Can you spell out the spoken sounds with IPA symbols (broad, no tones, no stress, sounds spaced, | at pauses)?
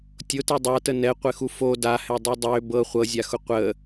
tʲ ʊ t ɛ dˤ a t ə n ɛ qʷ ɘ x u f o d a h ɛ dˤ u dˤ ø b ɤ χʷ ɤ zʲ a x ʊ qʷ ə